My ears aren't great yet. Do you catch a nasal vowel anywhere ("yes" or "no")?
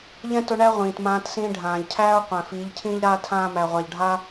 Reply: yes